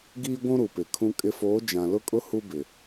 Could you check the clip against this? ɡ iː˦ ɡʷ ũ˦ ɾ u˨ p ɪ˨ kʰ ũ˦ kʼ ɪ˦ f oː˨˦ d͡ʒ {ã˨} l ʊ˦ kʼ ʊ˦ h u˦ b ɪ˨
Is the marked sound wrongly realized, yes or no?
no